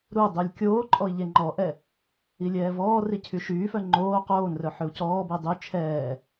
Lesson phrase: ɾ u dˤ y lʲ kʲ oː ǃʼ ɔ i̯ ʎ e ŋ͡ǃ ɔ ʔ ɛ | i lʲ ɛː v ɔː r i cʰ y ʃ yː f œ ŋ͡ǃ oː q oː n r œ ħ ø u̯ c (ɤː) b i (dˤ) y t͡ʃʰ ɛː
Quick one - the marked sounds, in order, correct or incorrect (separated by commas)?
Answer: incorrect, correct